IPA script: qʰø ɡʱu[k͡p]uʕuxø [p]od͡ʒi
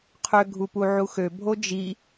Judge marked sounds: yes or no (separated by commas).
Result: no, no